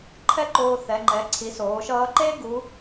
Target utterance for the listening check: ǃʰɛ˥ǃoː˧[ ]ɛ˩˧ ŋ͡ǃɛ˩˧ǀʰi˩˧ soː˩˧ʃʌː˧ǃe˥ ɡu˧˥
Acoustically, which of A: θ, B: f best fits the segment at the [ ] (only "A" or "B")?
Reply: A